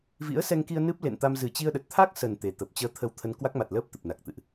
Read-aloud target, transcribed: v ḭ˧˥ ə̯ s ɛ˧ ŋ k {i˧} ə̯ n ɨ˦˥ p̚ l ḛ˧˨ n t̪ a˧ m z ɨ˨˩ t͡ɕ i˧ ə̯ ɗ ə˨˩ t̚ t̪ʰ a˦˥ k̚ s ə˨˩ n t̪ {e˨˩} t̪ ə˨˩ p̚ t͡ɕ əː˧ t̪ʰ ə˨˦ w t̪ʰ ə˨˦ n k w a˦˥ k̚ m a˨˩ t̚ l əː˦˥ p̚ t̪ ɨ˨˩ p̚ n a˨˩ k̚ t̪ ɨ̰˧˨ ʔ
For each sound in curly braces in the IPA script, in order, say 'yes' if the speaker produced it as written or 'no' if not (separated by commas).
yes, yes